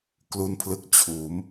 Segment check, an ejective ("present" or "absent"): absent